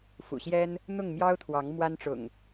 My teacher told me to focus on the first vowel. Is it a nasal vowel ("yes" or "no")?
no